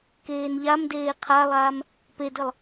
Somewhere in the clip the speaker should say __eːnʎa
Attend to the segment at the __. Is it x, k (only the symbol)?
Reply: k